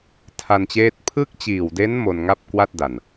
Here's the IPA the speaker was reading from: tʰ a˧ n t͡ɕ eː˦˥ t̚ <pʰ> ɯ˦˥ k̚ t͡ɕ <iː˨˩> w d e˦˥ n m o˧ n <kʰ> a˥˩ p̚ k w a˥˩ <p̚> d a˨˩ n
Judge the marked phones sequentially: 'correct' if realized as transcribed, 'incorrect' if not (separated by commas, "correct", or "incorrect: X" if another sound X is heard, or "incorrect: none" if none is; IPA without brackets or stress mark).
correct, correct, incorrect: ŋ, incorrect: t̚